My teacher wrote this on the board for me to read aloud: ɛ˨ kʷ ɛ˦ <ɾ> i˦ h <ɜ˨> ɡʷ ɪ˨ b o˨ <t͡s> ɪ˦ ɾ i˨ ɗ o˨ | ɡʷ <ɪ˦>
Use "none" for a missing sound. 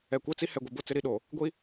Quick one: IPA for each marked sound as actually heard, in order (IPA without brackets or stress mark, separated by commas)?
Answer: t͡s, ɛ˨, t͡s, i˦